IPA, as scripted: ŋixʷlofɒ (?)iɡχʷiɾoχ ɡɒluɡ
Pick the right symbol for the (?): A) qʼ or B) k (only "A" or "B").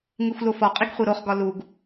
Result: A